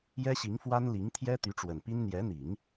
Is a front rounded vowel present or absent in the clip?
present